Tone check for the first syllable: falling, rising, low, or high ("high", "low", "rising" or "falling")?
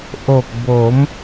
low